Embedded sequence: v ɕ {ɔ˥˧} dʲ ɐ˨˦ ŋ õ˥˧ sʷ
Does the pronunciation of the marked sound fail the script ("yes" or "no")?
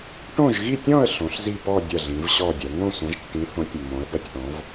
no